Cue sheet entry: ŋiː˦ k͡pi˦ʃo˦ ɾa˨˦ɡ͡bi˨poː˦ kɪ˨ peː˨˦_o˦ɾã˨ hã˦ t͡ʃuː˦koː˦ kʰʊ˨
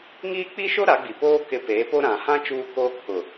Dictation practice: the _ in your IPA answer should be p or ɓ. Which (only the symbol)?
p